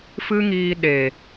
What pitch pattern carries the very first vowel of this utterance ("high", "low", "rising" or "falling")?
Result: high